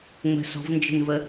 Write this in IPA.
ŋ͡m ə̤ s ɔ̤ v n d͡ʒ ə̤ n v ə

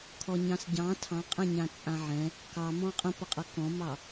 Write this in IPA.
kʰ ɔ ɲ ɑ̃ s ɟ ɑ̃ tʰ ɑ̃ qʼ ɛ̃ ɲ ã t͡sʼ ã ʕ ɛ̃ | k ɑ m ɔ̃ qʼ ə̃ p ʌ qʼ ʌ k ɔ̃ m ɑ

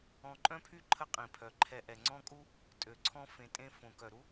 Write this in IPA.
ɔ̃˨ ǃʼ œ̃˥ pʰ y˥ ǃʰ ə˥ qʼ ĩ˩ pʰ œ˩ ǃʰ ɛ˨ ʔ ɛ˩ ŋ͡ǀ ɔ̃˥ kʼ u˥ | tʼ ø˩ ǀʰ ɔ̃˦ f ẽ˨ tʼ ẽ˦ f õ˩ k œ˩ ɾ u˥

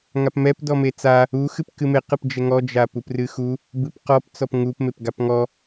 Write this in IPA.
ŋ a p m ɛ p d ɔ m e t͡s a | u x ɨ p k ɨ m e q ɨ p d͡ʒ ɛ ŋ ɔ d͡ʒ a p u p r ɨ x u | b ɨ p q ɔ p t͡s ɔ p ŋ u p m e p ɡ a p ŋ ɔ

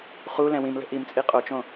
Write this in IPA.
χ u l ɛ̃ w ĩ m l ə̤ ʔ i m t͡sʼ i qʼ o t͡ʃ õ

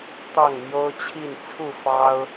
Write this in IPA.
t̪ ɑ˥˨ ŋ m j o˦ ʊ̯ t͡ɕʰ i˥˨ n t͡sʰ u˥˨ f ɑ˦ ʊ̯

